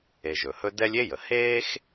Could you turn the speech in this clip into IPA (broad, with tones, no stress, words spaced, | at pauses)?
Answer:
e˨ʒɵ˩hɵ˥ dɛ˥lʲ e˥jə˩ heː˥x